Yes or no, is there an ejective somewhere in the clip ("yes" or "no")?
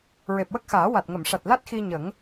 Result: no